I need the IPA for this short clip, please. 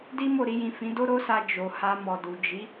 d i˦ m o˦˨ ɾ i˧ j ĩ˨ f ĩ˨˦ d o˦ ɾ o˦ s a˧ d͡ʒ o˨ h a˧ m ɔ˨ d u˨ d͡ʒ i˨˦

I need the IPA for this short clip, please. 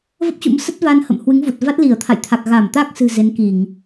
v ə˦˥ p̚ t͡ɕ ṵ˧˥ m s ə˦˥ t̚ v a˧ n h ə̰˧˨ m h w ɨ˨˦ ŋ v u˨˩ t̚ v a˦˥ t̚ l i˧˩ ə̯ t̪ʰ a̰˧˨ j t̪ʰ a˨˩ k̚ ɣ a˧˩ m t̪ a˦˥ k̚ s ɨ̤˨˩ z e˨˦ n k i˧˩˨ ŋ

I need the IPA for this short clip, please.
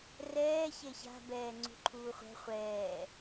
r ɛː ç e ç a̤ b ɛː ŋ͡ǀ ṳ ǃʰ uː χʷ ɛ̤ χʷ ɛː

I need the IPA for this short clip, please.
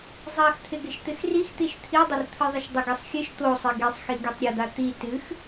zˤ a x t̪ʰ ɪ ɡ ɪ ʃ t̪ ɪ x r i x t̪ i ʃ t̪ʰ i dˤ ɪ r t̪ʰ ɨ ðˤ ɪ ʃ dˤ ɘ ɡ e sˤ xʲ ɨ ʃ t̪ o sˤ ɪ ɡ i sˤ x i ɡ i tˤ ɾʲ ɘ d̪ a t̪ i t ɨ x

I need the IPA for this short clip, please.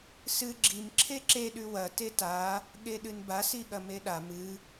s ɨ ɡ͡ǁ i m ǁʰ e ǁ e ɗ ʉ w ɐ t e t a | ɠ e ɗ ɨ n b a s i ɠ ɐ m e ɗ a m ɨ

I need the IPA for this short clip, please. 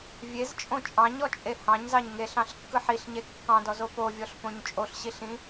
vʲ e z t͡ʃʼ õ t͡ʃʼ ɑ̃ ɲ ɔ t͡ʃʼ e h ɑ̃ ɲ z ɑ ɲ ŋ e ɬ ɑ̃ ɬ kː ɯ ħ i ɬ ɲ e kː ɑ̃ d ɔ z o p o vʲ ɔ ɬ p õ ɲ t͡ʃʼ o ɬ ɕ i ɬ ĩ

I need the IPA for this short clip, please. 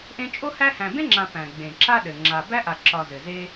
ʔ ẽ˦ t͡ʃʼ o˥ h æ˦ h æ̃˨ b ẽ˥ ŋ͡ǁ ã˨ p æ̃˩ ɡ͡b ẽ˩ ǁ a˦ ɗ ɘ˩ ŋ͡ǁ a˨ b æ˥ ʔ a˨ ǁ ɒ˨ z ɘ˩ z e˥

